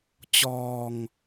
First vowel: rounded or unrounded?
rounded